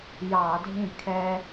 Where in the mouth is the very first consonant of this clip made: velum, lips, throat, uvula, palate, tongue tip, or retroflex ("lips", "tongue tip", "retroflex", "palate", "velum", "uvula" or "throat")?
palate